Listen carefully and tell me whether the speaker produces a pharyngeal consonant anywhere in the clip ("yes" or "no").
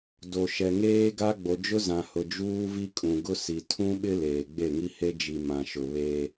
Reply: no